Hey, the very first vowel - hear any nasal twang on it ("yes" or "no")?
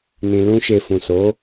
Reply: yes